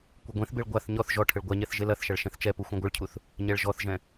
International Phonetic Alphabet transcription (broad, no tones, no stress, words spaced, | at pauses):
kʷɘɡʷẽθbeɭ ɡʷaθ ɲɔθ ʒɔʈʰɘɭ ɡʷaɲɛθ ʒelɐθʃɐɭ ʃɛ̃θt͡ʃɛpu xʷɛ̃ɡʷɨɭcʰuθ | ɲɛɭʒɔθʒɛ̃